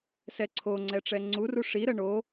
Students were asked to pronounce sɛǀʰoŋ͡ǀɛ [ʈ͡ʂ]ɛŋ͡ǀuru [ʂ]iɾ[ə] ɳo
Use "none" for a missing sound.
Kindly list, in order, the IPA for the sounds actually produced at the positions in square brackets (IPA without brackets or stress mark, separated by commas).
ʈ͡ʂ, ʂ, ə